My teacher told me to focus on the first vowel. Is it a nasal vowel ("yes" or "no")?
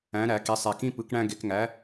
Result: yes